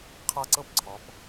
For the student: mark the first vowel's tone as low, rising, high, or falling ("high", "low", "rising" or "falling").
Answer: high